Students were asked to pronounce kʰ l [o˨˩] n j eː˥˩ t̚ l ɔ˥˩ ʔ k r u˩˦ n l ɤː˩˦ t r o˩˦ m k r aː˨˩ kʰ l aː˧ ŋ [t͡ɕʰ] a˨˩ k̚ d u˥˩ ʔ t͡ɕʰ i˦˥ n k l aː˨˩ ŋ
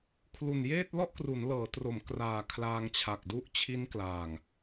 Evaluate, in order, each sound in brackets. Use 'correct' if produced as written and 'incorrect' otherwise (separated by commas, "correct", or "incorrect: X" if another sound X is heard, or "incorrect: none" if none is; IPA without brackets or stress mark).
incorrect: u˨˩, correct